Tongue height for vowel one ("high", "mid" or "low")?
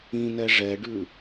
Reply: high